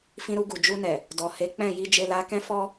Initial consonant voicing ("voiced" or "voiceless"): voiceless